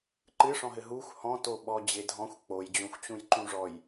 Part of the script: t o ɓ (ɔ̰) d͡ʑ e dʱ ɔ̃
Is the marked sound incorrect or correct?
incorrect